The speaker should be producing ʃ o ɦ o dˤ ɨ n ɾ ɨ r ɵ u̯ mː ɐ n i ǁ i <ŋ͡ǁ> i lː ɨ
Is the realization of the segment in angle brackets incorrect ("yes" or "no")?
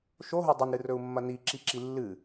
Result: yes